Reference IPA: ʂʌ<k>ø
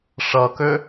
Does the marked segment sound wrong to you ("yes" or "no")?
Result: no